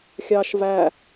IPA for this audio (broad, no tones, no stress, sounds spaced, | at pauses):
xʲ ɑ ʃ v æ